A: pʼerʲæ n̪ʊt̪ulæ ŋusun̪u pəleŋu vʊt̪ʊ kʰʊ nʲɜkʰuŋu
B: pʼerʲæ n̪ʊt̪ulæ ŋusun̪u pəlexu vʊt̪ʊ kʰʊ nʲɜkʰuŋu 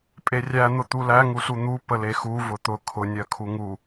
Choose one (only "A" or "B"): B